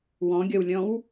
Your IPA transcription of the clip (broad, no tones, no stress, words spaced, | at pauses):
wɔ̃ɡʲɔwlʲɔ̃w